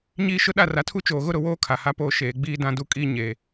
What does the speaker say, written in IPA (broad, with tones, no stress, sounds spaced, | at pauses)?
ɲ iː˦ ʃ ʊ˦ ɗ a˦˨ r a˨ tʰ u˦ t͡ʃ oː˨ ɣ ʊ˦ ɾ ʊ˨ w oː˦ kʰ a˨ h a˦ p oː˦ ʃ eː˨ ɡ͡b iː˦ d ã˦ d u˦ kʼ iː˦ ɲ eː˨